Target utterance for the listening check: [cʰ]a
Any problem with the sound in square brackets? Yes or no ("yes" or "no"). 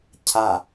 no